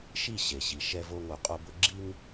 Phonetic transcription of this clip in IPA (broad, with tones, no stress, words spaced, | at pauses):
ʃi˦˨ ɕe˨ɕi˨ ʃɛ˧vo˧ ŋo˨qʼo˧bʊ˦ ɡ͡ǁi˦ŋ